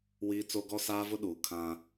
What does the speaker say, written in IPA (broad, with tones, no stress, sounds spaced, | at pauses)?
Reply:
w iː˦ t͡s o˦ ɡ ɔ˦ s aː˦ v ʊ˦ ɗ uː˨ kʰ ã˦